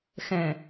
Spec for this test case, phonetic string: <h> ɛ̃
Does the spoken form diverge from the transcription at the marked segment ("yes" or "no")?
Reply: yes